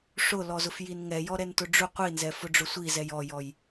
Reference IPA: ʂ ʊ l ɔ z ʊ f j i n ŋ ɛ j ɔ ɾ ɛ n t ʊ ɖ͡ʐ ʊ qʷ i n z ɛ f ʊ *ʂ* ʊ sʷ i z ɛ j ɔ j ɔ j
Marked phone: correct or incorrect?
incorrect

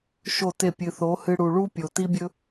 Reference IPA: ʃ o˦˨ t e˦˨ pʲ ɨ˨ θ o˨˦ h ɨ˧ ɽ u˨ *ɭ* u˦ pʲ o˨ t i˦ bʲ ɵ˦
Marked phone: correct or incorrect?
correct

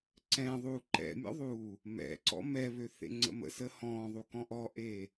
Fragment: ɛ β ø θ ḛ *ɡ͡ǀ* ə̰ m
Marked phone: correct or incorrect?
incorrect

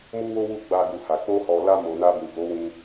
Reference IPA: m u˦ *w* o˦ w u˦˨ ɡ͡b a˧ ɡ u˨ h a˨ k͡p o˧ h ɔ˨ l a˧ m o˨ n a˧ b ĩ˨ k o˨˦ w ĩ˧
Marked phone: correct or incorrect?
correct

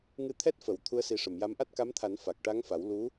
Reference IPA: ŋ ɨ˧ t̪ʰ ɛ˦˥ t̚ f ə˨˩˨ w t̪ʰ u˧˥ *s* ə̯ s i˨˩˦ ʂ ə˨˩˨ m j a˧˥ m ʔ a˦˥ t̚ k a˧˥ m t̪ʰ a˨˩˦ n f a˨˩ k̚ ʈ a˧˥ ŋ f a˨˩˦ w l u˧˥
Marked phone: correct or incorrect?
incorrect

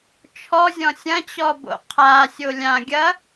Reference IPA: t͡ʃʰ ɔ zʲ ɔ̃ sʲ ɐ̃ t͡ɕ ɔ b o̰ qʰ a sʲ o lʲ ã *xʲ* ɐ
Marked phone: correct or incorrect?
incorrect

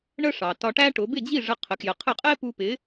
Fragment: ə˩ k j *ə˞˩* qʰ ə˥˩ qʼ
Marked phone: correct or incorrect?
incorrect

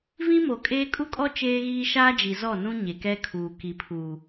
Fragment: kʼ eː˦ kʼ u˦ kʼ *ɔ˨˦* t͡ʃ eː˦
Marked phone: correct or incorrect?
incorrect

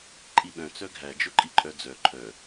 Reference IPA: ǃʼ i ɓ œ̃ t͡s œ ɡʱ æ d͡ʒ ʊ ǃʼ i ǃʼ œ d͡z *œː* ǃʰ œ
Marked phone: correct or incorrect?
incorrect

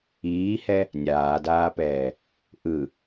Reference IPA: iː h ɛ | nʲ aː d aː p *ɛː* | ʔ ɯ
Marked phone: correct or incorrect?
correct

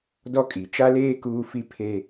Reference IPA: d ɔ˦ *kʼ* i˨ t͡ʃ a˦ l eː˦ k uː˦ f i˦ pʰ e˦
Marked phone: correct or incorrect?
correct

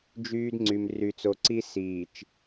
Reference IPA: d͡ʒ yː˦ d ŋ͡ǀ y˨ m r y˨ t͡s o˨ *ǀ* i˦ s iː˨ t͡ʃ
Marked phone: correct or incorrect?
correct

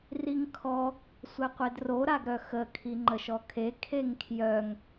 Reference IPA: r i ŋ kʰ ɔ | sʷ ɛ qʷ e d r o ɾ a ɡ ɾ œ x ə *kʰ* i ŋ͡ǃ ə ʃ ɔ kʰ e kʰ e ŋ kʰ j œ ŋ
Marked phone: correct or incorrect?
correct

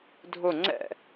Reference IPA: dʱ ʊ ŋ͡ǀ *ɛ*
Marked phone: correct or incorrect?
incorrect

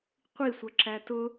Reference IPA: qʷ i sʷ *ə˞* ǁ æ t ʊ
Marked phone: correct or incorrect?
incorrect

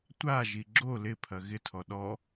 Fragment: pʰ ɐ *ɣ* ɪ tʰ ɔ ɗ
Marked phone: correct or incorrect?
correct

